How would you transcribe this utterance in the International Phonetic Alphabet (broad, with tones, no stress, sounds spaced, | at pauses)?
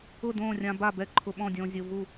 ʊ˥˨ d õː˥˨ rʲ ã˧ b a˥˨ b ɛ˥˨ ǃʰ ʊ˧ ɓ ɔ̃˥˨ dʲ õː˧ zʲ ʊ˧ v u˥˨